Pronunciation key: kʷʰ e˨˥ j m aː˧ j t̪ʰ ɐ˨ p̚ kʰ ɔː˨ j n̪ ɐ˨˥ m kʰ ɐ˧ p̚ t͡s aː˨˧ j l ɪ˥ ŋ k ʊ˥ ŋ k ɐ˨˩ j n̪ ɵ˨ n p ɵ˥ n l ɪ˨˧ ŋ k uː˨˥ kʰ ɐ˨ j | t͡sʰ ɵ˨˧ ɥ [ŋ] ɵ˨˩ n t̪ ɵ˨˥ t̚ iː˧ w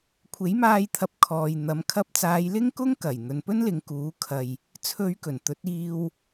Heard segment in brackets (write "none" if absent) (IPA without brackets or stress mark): k